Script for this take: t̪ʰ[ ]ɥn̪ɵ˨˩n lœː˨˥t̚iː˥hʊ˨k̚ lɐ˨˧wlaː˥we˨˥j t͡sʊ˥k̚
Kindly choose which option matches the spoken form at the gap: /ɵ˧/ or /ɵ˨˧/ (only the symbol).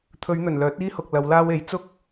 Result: ɵ˨˧